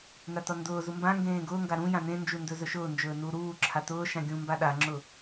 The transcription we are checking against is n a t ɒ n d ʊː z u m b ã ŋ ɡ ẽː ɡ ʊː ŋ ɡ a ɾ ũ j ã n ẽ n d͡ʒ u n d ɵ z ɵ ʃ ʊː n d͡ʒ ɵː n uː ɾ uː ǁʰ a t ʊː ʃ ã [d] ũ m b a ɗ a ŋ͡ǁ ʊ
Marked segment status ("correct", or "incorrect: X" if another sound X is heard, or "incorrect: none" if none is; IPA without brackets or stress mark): incorrect: ɡʲ